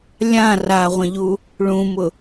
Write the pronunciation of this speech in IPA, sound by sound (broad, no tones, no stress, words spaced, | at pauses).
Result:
lʲã raʁʷə̃ʎu | ɭũmʊ